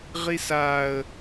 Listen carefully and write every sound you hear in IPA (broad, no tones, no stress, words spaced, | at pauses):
ʁisaə̯